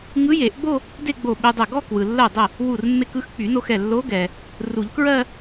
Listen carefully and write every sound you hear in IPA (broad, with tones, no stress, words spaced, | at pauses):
ŋɯ˧˥je˨˩˦ʔɡ͡bo˥˧ | de˥˧ ɡ͡bo˧˩ ɓe˧dˤɛ˧˩ ɡɔ˥˧ kwɯ˩lːɜ˧˩dˤə˧˩ | wu˧˩rmːe˧k ɯ˥˧xk͡py˨˩˦no˧xɛ˧˩ lːo˧˥ɡɛ˩ | ru˨˩˦ʎkɹɜ˥˧